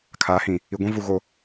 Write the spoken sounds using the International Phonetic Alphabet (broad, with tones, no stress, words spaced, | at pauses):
kʰaː˨˦hĩ˨ | i˨ɡʷĩ˦vu˨ ɣo˨